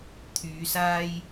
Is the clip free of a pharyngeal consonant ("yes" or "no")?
yes